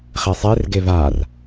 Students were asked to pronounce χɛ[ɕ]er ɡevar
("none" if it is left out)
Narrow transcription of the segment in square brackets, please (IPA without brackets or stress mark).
sˤ